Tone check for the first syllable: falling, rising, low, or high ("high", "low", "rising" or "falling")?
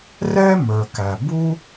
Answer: high